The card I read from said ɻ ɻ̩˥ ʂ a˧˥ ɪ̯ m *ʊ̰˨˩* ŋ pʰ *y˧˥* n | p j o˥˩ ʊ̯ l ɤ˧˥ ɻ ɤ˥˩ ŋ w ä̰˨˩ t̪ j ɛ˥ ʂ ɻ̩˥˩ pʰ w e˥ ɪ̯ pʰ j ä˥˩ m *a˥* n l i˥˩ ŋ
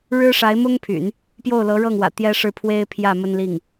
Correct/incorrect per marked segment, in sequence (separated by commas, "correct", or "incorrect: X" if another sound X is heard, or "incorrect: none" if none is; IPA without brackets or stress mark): incorrect: ʊ˥, incorrect: y̰˨˩˦, incorrect: ə˥